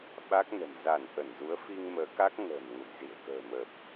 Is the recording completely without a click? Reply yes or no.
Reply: yes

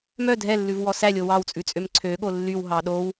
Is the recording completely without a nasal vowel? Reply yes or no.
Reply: yes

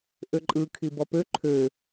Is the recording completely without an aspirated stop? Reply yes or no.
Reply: no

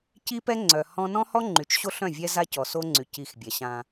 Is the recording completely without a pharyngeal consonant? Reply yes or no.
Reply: yes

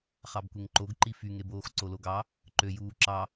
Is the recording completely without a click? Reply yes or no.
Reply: no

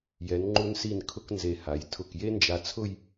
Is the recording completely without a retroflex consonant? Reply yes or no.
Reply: yes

